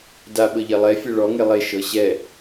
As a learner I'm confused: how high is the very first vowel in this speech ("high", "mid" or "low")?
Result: low